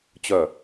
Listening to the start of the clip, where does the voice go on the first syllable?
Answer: falling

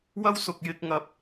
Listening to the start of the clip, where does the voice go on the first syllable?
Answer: high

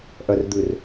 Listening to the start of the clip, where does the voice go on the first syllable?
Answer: low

